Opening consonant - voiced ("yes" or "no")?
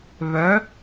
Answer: yes